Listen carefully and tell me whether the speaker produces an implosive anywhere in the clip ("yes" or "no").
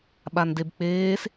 yes